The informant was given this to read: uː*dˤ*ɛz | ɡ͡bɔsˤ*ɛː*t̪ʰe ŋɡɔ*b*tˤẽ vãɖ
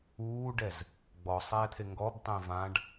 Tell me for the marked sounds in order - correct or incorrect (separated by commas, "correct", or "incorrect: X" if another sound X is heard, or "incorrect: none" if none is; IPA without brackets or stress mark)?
incorrect: ɖ, correct, correct